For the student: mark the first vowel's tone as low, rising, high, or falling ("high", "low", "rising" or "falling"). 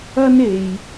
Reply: high